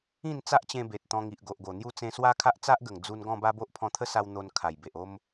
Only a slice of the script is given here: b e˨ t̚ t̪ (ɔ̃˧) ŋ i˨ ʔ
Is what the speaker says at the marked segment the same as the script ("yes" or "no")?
yes